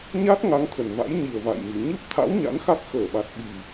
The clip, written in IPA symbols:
ɲa˦˥t̚ ŋa˨˦ŋ t̪ʰə˨˩nva̰˧˥j ɲi˨˩ə̯va̰˧˨jmi˨˩ ɲɨ˦˥p̚t̪ʰa̰˧˥w ɲa̰˧˥nxa˦˥k̚ xəː˧˩ɓa˨˩t̚ ɓi˨˩

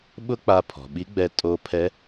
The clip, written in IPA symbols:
ɓʊ˥k͡pa˧pʰɔ̤˩ɓi˧˥ ɡ͡bɛ˧ tʼo˧˥pʰɛ˧˥

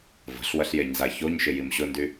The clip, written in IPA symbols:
və̤ɬwɐɬjeɲza çoɲʃɪ jimɕʊndy

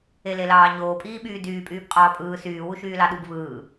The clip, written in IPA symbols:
elelɑːɲoː pʼiːɓyːdyː pʼyːbqʼɑːpʼɯː syː wuʃyːlɑɗub vɯː

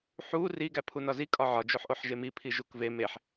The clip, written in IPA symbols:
ħu ri ɡæpʰunɒzi kʼɒʕɒ d͡ʒoħʔoħʒemi pʰiʒukve meħ

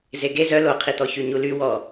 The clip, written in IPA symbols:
zeɡe zœ loqʰit̪ɔçy ɲuly wɔ

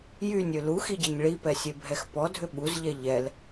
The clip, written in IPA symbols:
jynʲʏ luxiɟɛɲ ɭipɛsʲebʱɛx pɔdʱʏ ɓuzʎɛ ʎɛl

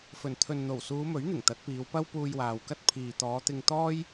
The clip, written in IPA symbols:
fɵ˨˩nt̪ʰɵ˨nn̪o˨˩w suː˨˧mɵ˨˥ɥn̪ɪ˨˩ŋ t̪ɐ˨˥t̚piː˨˧w pɐ˥wpuː˧jwaː˨wkɐ˥t̚ pʰiː˨t̪ɔː˨˧t̪ɪ˧ŋ t̪ɔː˥j

